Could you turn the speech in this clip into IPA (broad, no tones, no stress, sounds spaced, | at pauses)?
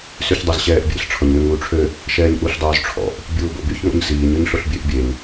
s y ç dˤ o z ɕ ɛː ʔ bʲ ḛ ɬ ʈ͡ʂʰ ɔ ɲ ŋ ø ŋ uː ʈ͡ʂʰ ø | ʃ ɛː ɲ ʔ u ɬ dˤ oː z ʈ͡ʂʰ ɔ̰ ʔ | bʲ uː b o̰ b y ç ŋ o̰ ɲ s iː ɲ ø ɲ ɬ o ɬ bʲ ø ʔ bʲ e ŋ